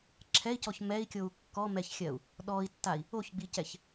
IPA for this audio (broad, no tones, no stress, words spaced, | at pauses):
ǁʰɛi̯cɔç mɛi̯kʲou̯ kːɔmɛçxʲɜu̯ | ɗɔi̯tːai̯ | oçɡ͡bicɛç